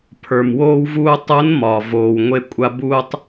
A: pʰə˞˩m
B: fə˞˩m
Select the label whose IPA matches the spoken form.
A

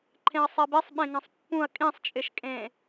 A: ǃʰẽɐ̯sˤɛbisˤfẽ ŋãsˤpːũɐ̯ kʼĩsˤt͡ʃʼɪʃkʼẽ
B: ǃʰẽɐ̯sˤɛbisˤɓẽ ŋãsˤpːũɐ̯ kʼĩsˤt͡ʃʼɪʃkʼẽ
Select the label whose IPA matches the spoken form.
B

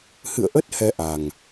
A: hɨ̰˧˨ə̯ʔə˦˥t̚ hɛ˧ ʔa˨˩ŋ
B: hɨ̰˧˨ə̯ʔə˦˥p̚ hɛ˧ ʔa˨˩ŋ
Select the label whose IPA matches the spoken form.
A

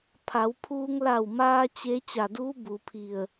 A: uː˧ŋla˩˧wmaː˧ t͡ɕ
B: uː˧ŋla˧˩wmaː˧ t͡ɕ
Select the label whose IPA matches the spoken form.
B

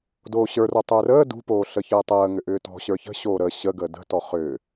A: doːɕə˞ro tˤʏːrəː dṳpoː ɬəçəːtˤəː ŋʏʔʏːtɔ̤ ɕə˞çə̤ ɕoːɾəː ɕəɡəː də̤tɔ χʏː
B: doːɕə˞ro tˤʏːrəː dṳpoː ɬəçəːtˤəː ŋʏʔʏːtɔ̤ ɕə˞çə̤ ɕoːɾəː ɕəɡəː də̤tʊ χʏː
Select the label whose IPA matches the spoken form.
A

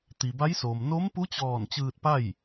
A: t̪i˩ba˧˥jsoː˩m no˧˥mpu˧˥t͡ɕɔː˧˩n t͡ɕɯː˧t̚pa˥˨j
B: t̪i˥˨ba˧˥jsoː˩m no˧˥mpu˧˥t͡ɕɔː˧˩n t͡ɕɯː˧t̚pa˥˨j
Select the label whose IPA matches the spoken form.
A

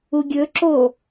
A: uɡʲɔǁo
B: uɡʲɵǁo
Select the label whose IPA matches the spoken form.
B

